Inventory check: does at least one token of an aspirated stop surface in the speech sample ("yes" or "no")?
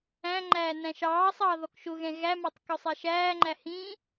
no